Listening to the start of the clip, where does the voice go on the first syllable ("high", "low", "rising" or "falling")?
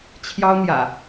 high